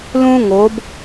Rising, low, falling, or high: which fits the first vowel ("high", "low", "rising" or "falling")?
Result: high